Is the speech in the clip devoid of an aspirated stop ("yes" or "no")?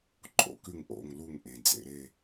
yes